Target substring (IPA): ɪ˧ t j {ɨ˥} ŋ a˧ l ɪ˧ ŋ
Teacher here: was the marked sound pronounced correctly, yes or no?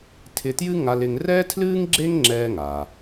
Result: yes